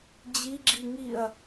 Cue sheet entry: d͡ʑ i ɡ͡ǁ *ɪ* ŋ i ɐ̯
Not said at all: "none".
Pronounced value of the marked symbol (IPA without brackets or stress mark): i